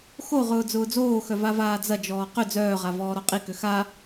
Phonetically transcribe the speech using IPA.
x o ʁ ʊː d͡z ʊː d͡z oː x œ v a v aː d͡z ɐ d͡ʒ ɔː q ʏ d͡z œː ʁ a v ɔː ɾ ɔ qʼ i k ø x a

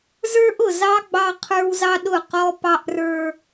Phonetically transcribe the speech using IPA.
z ə˞˦ ʔ ʊ˨ z ɑ˦ ɡ͡b ɑ˦ qʰ ə˞˦ w z ɑ˦ ɗ ʊ˦˨ q ɔ˦ p ɑ˦ ʔ r ə˞˦

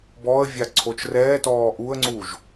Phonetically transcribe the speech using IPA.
b ɔ ə̯ vʲ a ǀʰ o t͡ʃ r ɛː t ɔː ʔ u ə̯ ŋ͡ǀ uː ʒ

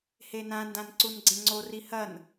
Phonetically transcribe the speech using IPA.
h e n ã n d ã n ǀ u n ɡ͡ǀ ẽ ŋ͡ǀ o r i h ɐ n

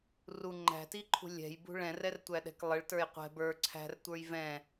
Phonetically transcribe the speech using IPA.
r u ŋ͡ǃ æ̤ t i ǃʰ ṳ lʲ ɛ̤ j b ṳ ɭ ɛ̃ r ɛ r tʷ æ ɗ ɛ̤ k lˠ ə ɭ t ə˞ j qʷ ɛ̤ b ə˞ ǀʰ æ̤ r tʷ ə˞ j v ɛ̃

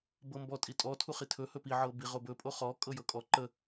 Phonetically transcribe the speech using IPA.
b ɤ m b ɔ tʼ i tʼ ɔ tʰ u χ i tʰ ɵ h ɵ p i ʕ ɤ b i ʁ o b ɵ pʼ o χ ɔ kʼ ɤ j ɤ kʼ ɔ ǃ ə

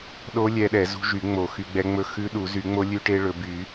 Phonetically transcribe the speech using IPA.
ɗ o˦˥ lʲ ɛ˦˥ ɗ ɛ˨˩˦ z ṳ˦˥ ʒ y˨˩˦ ŋ͡m o˨˩˦ x y˨˩˦ ɡ͡b ɛ˦˥ ŋ͡m ɵ˦˥ x ʉ˦˥ ɗ u˨˩˦ z y˨˩˦ ŋ͡m o˦˥ lʲ ʉ˦˥ ʈ e˦˥ ɭ ɵ˨˩˦ b y˨˩˦

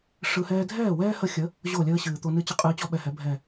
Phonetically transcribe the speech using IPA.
ʂ ɯ˧ h ɛː˦ dʱ ɛː˦˨ w ɛː˦ h ə˧ xʲ ə˨˦ | ʑ o˦˨ lʲ əː˦ ɕ ɨː˨ t̪ o˧ n ɨ˦ t͡ɕ ʌ˦ qʼ ɨː˧ t͡ɕ ɔ˦ ɓ ɛ˨ h ɛ˨˦ bʱ ɛ˦˨

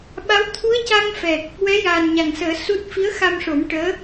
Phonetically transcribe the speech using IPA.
ɓ a˧˥ w t̪ʰ u˧˥ ə̯ c a˧ ŋ f ɛ˨˩ k̚ | w ɛ˧˥ j aː˨˩ n ɲ a˨˩ ŋ s əː˨˩˦ s u˦˥ t̚ f i˧˥ ə̯ x a˧ m ʂ o˨˩˦ m ʈ əː˧˥

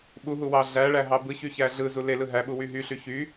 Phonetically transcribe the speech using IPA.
ɓ u ɦ u w ɑ ɮ æ ɭ æ ɦ ɑ b ɯ ç y ç æ ɮ ɯ z u l e l ɯ ɦ æ ɓ u w y ɦ y ɬ y ç y

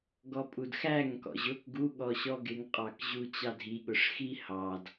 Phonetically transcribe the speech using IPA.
ɡ ɔ pʼ u d x æ ŋ k ɔ̰ ʑ ʊ k ɡ u ɠ ɔ ɕ ɔ ɡ ɪ ŋ qʼ ɑ k ʑ u t͡ɕ ɑ dʱ i ɠ ʊ ʂ x i h ɑ d

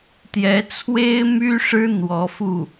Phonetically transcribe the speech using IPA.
t̪ j ɛ˧˥ t͡sʰ w e˥ ɪ̯ m y˥ ʂ ɻ̩˥ n̪ w ɔ˧˥ f u˥˩

